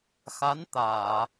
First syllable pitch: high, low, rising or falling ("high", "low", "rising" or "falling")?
rising